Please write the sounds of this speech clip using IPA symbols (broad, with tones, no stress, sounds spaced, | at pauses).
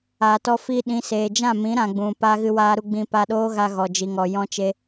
aː˨ t ɔ˧ f i˧ ɗ ĩ˨˦ s eː˨ d͡ʒ ã˦˨ m ĩ˨˦ ɾ ã˨ ɡ͡b ũ˨ p aː˧ ɣ ɨ˧ w aː˧ ɾ u˧ ɡ͡b ĩ˧ p a˧ ɗ oː˦ ɣ a˧ ɣ ɔ˨ d͡ʒ i˨ ŋ ɔ˨ j ɔ̃˦ t͡ʃ e˦